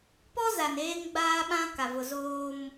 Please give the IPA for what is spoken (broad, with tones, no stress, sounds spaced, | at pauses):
p ɔ˦ z a˨ n eː˦ ŋ ɡ͡b aː˦ ɓ ã˦ k a˨ v ʊ˨ z oː˦ m